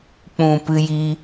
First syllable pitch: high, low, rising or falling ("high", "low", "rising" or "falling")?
low